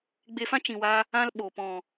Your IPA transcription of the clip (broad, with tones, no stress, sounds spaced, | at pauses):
ɡ͡b e˧ f ã˦ t͡ʃ ĩ˨ w a˧ | ã˦ l ɓ o˨ p ɔ̃˨